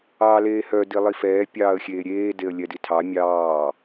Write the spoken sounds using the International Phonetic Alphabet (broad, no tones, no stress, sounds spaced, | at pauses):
ɑː l eː h œ d i lˠ i f ɛː pʲ ɑː ə̯ xʲ eː ɾʲ eː d e ə̯ lʲ ɛ d i tʰ ɑ mʲ ɑː